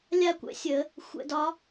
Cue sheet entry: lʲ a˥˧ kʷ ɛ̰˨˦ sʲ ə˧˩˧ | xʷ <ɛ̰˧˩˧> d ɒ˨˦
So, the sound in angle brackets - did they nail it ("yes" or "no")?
yes